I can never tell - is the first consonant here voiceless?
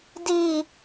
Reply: no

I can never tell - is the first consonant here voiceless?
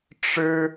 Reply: yes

